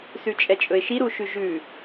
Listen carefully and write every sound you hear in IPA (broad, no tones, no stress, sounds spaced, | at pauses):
s ʉ t͡ʃʼ ɛ t͡ʃʼ ɵ ɪ̯ ʃ i ɾ u ʃ ʉ ʒ ʉ